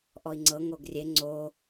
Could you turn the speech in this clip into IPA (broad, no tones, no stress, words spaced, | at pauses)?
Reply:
ʔɔi̯ŋ͡ǀɤ ŋoɡrʲe ŋ͡ǀo